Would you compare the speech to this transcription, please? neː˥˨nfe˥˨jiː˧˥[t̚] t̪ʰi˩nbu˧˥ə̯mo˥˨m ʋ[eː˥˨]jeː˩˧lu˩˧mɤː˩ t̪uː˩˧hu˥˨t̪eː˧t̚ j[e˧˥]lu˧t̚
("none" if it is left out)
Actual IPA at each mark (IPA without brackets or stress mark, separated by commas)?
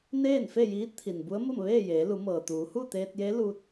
t̚, eː˥˨, e˧˥